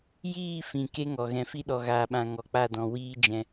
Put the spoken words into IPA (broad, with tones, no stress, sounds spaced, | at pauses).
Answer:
j iː˦˨ f ĩ˨ k e˦ ŋ ɔ˨ ɣ ɛ̃˨ f i˦ ɗ ɔ˨ ɣ aː˨ ɓ ã˨ ŋ ɔ˨ k͡p a˦˨ d ɔ̃˨ w iː˦ d͡ʒ ɛ̃˧